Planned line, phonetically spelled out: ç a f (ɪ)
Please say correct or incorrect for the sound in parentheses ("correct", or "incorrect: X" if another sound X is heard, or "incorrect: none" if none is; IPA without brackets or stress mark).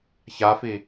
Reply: incorrect: i